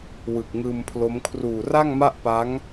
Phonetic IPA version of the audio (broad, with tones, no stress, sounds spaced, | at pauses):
w ɯ˨˩ k̚ ŋ ɯː˧ m pʰ l o˦˥ m kʰ r uː˨˩ r a˥˩ ŋ m a˥˩ ʔ p a˦˥ ŋ